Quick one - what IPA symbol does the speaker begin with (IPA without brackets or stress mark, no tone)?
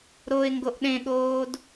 ɾ